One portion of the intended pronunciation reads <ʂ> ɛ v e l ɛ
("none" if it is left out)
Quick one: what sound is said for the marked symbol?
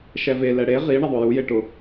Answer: ʃ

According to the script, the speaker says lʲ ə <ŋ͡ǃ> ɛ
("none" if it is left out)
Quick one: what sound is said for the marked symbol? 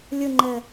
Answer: ŋ͡ǃ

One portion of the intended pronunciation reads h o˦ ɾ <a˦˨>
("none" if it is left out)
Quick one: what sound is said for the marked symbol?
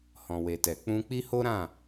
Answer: ã˦˨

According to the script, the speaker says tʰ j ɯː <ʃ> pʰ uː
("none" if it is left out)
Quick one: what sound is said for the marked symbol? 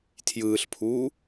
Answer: ɬ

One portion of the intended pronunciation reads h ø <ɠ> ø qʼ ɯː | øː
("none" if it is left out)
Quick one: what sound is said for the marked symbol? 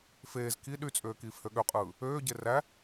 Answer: ɠ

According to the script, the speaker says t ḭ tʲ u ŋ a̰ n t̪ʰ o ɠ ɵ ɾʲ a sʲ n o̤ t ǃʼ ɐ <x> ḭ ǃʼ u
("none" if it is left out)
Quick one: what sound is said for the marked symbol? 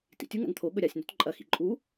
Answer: x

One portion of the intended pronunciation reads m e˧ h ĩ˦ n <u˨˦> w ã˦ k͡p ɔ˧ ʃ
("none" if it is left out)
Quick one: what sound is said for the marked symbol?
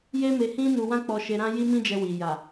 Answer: u˧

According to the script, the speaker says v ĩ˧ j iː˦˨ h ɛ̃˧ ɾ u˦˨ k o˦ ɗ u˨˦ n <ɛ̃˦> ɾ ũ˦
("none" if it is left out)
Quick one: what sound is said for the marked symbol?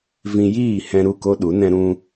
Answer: ɛ̃˦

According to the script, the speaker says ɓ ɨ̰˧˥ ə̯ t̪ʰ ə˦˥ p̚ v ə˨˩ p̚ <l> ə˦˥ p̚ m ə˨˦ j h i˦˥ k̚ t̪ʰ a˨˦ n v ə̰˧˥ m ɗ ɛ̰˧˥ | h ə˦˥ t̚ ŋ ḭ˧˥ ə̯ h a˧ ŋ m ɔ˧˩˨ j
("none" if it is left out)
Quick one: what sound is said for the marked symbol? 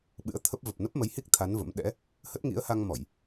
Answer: n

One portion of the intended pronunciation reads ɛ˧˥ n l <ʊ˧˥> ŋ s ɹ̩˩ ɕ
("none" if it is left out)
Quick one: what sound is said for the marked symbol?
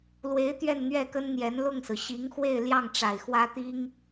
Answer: ʊ˥˩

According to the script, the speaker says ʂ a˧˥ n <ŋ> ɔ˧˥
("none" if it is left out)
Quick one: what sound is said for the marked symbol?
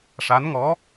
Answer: ŋ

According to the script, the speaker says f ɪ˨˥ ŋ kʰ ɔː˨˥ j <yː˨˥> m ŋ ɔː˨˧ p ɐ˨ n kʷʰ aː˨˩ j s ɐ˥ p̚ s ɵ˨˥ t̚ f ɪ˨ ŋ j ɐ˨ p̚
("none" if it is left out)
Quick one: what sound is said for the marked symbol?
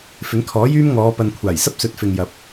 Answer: yː˥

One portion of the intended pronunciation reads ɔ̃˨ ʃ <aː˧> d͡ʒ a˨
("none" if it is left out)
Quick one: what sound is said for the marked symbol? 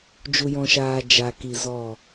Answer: aː˨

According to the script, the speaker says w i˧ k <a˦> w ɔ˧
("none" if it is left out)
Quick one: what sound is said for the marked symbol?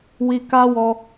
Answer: a˦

